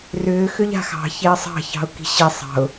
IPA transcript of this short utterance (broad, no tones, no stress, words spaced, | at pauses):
rʏː xʏʎa̤xɑ̤ çeə̯sˤɑ̤ çɑ̤ʊ̯ki̤ɕi sˤɑ̤ʊ̯